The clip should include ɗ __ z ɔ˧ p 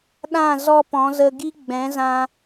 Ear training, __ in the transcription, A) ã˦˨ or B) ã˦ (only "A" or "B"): A